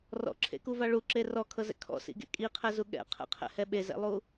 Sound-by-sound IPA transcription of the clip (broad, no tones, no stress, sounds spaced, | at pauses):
r ɔ̰ ǁʰ ḛ k u v a ɭ u ǁ e r ɔ kʰ ɤ z ɛ̰ kʰ ɔ̰ s ḭ ɡ ḛ kʼ i qʰ ɛ z u ɠ ɛ̰ qʰ ɛ̰ qʰ ɛ̰ h ɛ ɓ e z ɛ̰ lˠ u